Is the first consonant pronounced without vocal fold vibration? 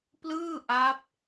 yes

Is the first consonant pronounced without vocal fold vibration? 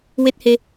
no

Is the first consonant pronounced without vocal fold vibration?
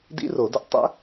no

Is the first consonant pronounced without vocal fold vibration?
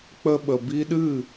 yes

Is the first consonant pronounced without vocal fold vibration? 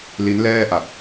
no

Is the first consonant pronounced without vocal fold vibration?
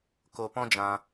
yes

